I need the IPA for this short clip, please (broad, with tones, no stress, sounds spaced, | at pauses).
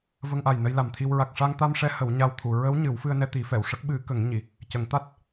v ə˧ ŋ ʔ a˨˩ j n ə˧ j l a˨˩ m t̪ʰ i˧ w ɹ a˨˩ k̚ ʂ a˧ ŋ t̪ a˧ m ʂ ɛ˧˥ h ə˨˩˦ w ɲ a˧ w t̪ʰ u˨˩˨ ɹ ə˧˥ w ɲ ɨ˨˩˦ w f ɨ˧ ə̯ n ɛ˧ t̪ i˨˩˦ f ɛ˨˩˨ w ʂ ə˦˥ k̚ ɓ ɨ˨˩˦ k ə˨˩˦ ŋ ɲ i˨˩˨ | c ə˨˩˦ ŋ t̪ a˦˥ t̚